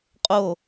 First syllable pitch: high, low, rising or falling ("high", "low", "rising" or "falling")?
falling